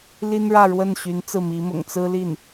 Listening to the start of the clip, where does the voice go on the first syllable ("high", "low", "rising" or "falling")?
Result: high